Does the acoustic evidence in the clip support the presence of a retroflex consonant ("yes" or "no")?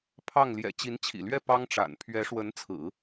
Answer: yes